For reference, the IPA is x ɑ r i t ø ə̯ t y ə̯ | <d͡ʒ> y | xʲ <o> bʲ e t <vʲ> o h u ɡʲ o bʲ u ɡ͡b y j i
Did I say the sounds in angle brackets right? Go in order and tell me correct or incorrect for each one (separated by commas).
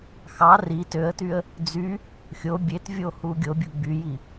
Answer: incorrect, correct, correct